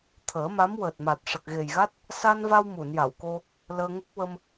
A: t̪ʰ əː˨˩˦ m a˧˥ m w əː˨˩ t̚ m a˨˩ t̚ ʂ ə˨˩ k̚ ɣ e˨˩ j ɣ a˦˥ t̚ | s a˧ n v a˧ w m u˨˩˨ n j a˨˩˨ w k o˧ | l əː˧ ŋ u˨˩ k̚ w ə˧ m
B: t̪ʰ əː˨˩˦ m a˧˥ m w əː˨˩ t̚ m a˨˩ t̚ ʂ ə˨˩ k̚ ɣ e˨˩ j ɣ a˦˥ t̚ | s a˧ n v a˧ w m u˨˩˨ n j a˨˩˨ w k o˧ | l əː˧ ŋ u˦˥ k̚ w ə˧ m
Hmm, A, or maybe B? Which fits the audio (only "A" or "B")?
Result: B